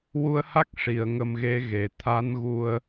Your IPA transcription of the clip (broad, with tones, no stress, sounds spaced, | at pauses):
w u˧ ə̯ h a˦˥ k̚ ʂ i˨˩˨ ə̯ ŋ ə˧ m ɣ e˧˥ ɣ e˨˩˨ t̪ʰ a˧˥ n ɣ u˧ ə̯